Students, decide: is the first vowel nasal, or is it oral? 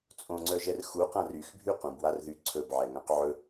nasal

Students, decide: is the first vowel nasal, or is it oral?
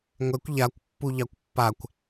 oral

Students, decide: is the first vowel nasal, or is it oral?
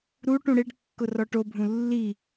oral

